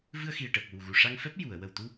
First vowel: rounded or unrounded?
unrounded